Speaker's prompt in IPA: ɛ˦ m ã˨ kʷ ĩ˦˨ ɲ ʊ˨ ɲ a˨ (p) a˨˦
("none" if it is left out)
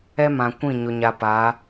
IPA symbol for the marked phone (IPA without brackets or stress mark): p